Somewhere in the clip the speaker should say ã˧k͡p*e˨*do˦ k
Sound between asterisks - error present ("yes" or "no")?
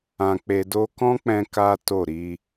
yes